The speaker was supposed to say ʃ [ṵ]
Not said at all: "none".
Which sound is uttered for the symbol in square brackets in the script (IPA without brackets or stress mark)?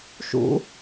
ṵ